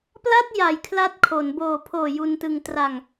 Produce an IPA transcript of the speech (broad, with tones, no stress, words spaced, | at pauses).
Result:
pla˥˩t̚ ja˨˩j kʰla˦˥t̚kʰo˩˦n boː˨˩pʰoː˨˩ ju˧ntɯ˧ŋ tra˧ŋ